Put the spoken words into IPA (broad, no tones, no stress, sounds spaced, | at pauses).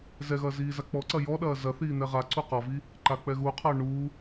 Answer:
z ɛ ɣ ɐː z iː z a k͡p ɔ ǀ ɐ j ɔ ɗ ɐː z ɐ θ iː n̪ ɛ ʁ a ǀ u q ɔ v i | ǃ a k͡p ɛ ɣ u qʰ ɐː ɳ uː